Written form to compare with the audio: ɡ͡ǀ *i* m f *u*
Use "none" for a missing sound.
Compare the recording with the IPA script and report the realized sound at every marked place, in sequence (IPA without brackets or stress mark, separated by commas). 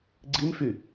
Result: i, y